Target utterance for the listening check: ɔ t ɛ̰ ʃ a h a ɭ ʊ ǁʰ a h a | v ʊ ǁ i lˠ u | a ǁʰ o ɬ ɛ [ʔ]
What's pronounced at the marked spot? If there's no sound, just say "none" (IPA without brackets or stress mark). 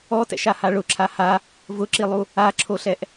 ʔ